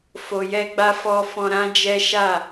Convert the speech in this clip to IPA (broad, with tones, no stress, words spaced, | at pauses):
fo˨jɛ˧ɡ͡ba˧ fɔ˧ fɔ̃˧ɾã˦d͡ʒɛ˦ ʃa˦˨